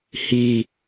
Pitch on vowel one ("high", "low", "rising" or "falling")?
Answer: low